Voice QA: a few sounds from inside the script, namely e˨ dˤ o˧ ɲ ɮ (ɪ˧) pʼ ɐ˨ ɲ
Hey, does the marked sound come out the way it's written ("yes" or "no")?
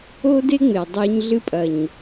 no